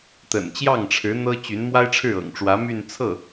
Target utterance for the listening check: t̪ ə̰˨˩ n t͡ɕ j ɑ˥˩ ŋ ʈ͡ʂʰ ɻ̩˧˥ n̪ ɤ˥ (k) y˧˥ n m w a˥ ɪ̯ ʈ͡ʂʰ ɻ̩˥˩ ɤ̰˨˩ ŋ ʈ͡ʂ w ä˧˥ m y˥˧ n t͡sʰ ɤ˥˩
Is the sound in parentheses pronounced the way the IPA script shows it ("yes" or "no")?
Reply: no